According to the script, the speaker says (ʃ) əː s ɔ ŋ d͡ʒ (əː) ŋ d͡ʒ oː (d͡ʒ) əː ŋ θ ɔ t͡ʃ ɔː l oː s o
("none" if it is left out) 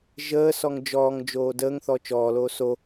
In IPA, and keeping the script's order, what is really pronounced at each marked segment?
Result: ʒ, ɔː, d

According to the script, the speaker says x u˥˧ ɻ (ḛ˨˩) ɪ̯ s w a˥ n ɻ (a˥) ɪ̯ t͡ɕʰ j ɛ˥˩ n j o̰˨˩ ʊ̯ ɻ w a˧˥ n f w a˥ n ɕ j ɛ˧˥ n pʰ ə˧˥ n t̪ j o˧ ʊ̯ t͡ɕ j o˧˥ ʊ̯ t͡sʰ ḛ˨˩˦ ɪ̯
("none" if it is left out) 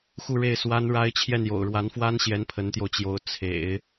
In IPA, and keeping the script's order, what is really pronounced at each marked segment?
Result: e˥˩, a˥

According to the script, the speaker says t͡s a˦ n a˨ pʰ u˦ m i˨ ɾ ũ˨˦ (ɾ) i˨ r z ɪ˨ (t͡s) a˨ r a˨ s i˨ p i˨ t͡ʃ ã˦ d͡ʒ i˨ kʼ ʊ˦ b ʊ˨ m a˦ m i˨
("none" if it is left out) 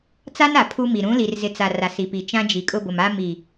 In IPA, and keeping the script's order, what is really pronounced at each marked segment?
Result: l, t͡s

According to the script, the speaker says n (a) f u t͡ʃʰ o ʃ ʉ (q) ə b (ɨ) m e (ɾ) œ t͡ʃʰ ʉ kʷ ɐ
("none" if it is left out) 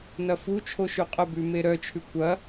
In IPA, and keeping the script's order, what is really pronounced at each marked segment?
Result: ɐ, qʼ, ʉ, ɾ

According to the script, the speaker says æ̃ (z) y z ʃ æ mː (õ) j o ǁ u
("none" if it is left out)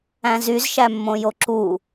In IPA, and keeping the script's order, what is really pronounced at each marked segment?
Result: z, õ

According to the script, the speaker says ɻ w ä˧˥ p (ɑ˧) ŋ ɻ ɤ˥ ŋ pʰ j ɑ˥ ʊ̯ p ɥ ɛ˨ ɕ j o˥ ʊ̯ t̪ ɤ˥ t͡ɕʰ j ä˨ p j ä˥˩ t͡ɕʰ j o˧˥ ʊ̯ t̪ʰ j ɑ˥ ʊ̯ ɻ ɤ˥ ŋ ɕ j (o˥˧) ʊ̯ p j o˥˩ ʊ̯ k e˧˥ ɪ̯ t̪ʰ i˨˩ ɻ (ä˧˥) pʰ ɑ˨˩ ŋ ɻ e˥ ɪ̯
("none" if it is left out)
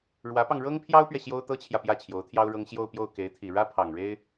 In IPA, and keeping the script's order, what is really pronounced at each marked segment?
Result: ɑ˧, o˥˧, ä˥

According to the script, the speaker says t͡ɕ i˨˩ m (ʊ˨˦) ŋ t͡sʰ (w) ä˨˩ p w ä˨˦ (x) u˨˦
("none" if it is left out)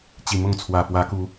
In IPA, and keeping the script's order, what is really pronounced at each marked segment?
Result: ʊ˥˨, w, k

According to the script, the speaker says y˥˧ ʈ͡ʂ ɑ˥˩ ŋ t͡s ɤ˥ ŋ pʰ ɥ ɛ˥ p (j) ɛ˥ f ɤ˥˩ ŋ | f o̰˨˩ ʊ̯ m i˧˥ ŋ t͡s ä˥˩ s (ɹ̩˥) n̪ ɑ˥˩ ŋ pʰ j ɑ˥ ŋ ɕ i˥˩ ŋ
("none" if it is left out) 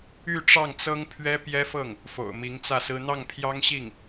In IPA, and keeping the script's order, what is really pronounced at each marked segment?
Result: j, ɹ̩˥

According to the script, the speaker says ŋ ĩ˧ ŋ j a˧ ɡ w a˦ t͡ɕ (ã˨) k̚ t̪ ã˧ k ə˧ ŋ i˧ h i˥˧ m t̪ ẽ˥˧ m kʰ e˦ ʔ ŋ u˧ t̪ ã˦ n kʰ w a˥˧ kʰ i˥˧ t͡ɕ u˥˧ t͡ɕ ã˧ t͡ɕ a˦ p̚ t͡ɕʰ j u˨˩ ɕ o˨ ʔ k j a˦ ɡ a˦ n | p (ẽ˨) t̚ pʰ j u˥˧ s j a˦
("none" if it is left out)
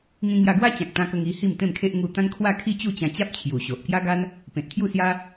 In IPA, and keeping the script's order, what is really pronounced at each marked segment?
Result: ã˨, ẽ˨

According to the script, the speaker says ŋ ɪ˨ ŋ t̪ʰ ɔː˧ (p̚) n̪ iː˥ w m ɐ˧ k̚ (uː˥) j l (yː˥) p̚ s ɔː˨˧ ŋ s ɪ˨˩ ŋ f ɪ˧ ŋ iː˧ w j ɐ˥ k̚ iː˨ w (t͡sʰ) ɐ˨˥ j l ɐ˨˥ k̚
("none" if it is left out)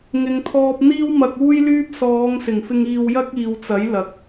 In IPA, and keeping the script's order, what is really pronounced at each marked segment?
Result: p̚, uː˥, yː˥, t͡s

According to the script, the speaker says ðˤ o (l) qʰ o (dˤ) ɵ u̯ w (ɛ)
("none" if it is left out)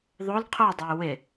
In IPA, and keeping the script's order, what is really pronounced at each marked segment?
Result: l, dˤ, ɪ

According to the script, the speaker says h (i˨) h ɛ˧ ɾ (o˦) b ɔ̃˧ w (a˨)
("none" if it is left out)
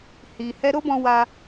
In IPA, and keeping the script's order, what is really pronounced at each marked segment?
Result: i˨, o˦, a˧

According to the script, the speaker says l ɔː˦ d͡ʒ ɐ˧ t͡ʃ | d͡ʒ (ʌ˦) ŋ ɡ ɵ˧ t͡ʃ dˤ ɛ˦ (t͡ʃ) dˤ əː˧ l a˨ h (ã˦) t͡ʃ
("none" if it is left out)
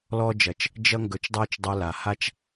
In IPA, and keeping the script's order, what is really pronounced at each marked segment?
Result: ʌ˦, t͡ʃ, a˦

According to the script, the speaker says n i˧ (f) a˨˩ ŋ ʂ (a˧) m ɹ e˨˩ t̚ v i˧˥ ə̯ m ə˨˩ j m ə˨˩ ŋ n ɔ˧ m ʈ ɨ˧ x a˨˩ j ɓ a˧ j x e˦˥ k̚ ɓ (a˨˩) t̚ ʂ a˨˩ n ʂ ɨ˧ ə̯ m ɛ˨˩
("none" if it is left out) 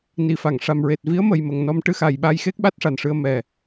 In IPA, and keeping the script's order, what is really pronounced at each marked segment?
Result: f, a˧, a˦˥

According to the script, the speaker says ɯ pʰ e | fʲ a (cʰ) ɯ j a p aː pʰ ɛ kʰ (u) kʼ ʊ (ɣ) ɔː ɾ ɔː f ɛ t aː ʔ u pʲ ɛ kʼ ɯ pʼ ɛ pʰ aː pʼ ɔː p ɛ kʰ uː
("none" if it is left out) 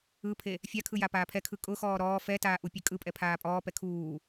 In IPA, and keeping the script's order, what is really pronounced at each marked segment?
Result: kʰ, ɯ, x

